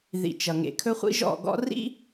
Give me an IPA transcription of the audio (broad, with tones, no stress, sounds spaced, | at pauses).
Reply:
ð ḭ˨ t͡ʃ ʌ˨ ŋ ḛ˨ kʰ ɵ˦ χʷ ḭ˦ ʒ ɔ̰˦˨ ɡ ɔ̰˦ r ḭ˦